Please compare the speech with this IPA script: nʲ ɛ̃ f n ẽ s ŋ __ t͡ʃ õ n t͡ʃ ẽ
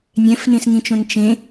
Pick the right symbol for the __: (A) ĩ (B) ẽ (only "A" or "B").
A